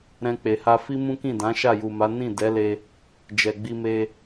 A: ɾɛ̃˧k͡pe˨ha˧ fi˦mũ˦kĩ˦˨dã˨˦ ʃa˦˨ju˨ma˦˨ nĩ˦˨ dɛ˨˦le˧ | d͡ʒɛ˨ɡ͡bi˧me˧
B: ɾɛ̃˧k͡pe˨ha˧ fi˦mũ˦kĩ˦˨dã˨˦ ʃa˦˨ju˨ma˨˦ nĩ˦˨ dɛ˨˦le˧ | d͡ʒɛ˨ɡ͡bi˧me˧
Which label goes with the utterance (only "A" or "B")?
B